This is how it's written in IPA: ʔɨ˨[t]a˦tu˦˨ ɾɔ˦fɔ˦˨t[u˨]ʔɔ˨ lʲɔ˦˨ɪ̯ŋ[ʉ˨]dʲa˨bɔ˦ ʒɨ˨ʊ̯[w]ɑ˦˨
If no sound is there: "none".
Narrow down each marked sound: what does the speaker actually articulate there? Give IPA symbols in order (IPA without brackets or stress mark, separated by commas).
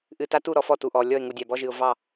t, u˨, u˨, v